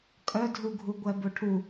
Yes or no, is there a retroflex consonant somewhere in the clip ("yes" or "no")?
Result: yes